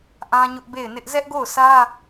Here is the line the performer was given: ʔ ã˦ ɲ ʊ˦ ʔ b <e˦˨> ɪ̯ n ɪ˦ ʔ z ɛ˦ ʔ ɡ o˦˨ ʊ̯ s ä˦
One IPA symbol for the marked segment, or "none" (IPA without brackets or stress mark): e˦˨